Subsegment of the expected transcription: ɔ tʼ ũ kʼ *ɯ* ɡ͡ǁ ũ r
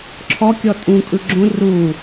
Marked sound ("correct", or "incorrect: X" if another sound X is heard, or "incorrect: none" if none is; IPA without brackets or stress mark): correct